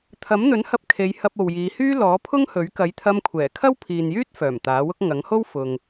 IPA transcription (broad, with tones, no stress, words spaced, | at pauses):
t̪ʰɐ˨˥mn̪ɵ˨˥nhɐ˧p̚ kʰe˨˧jhɐ˧p̚ o˨wjiː˨˧hyː˥ lɔː˨˥pʰʊ˥ŋhɵ˨˥ɥ kɐ˨˥jt̪ʰɐ˧mkʷʰɛː˨˩ kʰɐ˥wpʰiː˨njyː˥t̚ fœː˨˩mt̪aː˨˥wʊ˥k̚ ŋɐ˨˥ŋho˥w fʊ˨ŋ